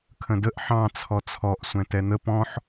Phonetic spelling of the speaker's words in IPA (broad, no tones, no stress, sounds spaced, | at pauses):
kʰ ə̃ d ə ʔ ħ ɑ̃ t͡sʰ ɔ t͡sʰ ɔ ʔ sʷ ɛ̃ t ɛ n̪ ə p ɔ̃ ħ